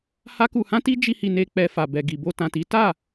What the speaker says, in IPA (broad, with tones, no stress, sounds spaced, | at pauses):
h a˦ k u˧ h ã˦ t i˦ d͡ʒ i˧ h i˨ n e˧ k͡p ɛ˦ f a˧ b ɛ˧ ɡ i˨ b o˧ t ã˨ t i˨˦ t a˦˨